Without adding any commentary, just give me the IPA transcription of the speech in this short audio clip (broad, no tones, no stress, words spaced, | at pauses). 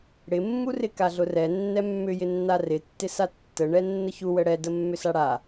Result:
ɽɪmːurɪ kaɮʊrɛ nːɛmːʏjɪnːa rɪtːɪsa tːəɳɛ nːəçu wəɽɛdə mːʏsaɽa